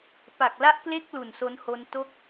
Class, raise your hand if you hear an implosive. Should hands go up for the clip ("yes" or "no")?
no